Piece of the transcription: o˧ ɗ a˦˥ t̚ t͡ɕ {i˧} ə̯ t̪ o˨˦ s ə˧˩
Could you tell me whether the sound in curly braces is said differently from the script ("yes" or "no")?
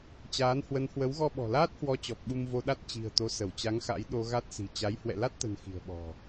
yes